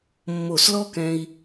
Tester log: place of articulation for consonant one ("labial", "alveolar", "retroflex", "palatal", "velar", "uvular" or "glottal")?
labial